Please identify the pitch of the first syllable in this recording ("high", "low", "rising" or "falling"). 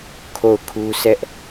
falling